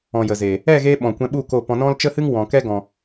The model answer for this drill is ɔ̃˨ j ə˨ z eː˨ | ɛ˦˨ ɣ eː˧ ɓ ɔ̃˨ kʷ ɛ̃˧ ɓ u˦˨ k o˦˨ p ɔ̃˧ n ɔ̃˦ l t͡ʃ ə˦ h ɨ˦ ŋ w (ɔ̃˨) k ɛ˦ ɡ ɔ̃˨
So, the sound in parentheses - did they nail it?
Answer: yes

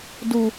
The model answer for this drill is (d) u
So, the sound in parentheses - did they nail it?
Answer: yes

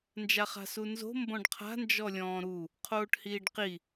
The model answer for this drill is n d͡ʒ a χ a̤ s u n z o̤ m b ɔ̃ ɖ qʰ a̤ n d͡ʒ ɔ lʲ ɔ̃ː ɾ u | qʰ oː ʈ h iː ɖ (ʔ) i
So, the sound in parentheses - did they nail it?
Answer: no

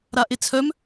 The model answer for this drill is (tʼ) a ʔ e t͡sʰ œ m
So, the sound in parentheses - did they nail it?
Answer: no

